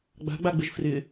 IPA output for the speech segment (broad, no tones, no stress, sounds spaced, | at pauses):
ɡ͡b a̤ ɡ͡b a ɡ͡b ɪ ʒ f r ɪ